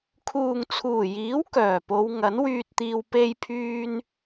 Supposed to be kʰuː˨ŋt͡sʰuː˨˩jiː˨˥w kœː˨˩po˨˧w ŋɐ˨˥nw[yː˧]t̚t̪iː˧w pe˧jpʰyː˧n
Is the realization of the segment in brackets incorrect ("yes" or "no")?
no